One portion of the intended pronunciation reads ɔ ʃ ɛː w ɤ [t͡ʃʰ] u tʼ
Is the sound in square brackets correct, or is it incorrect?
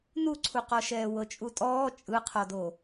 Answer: incorrect